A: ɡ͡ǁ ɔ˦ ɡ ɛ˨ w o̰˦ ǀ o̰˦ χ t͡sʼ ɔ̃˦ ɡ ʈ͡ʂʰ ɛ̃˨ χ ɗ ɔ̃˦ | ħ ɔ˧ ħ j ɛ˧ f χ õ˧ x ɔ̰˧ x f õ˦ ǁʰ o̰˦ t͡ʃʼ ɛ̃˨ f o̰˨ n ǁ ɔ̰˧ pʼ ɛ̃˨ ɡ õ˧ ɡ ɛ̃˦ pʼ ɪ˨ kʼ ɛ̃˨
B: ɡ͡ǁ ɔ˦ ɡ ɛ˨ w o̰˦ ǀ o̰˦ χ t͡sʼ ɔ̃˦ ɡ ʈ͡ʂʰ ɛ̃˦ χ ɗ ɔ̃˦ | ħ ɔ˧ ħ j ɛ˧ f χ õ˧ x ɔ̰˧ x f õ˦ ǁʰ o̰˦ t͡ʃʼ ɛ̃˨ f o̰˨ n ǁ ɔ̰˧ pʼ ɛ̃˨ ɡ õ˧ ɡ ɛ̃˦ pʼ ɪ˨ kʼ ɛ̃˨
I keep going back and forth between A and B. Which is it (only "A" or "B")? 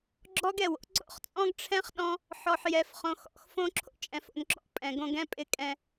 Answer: B